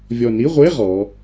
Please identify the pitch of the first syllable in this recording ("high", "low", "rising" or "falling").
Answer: low